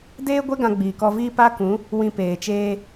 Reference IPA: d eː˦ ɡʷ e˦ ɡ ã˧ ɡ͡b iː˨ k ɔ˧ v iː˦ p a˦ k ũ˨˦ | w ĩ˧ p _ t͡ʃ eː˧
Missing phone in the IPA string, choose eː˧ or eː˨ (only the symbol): eː˨